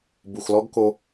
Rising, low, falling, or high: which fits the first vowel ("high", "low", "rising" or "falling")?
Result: low